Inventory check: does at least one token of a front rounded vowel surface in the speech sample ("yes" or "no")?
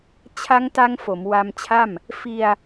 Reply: no